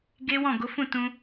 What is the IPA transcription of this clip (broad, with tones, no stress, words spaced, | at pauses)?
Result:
ɡe˦wɔ̃˦˨ ɡo˨˦fũ˦˨ tũ˧